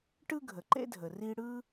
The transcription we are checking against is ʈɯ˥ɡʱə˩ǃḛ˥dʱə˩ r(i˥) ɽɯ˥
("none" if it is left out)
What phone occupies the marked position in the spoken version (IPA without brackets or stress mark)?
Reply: i˥